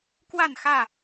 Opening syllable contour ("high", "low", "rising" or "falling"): falling